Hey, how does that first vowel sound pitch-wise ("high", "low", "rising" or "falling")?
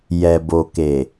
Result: low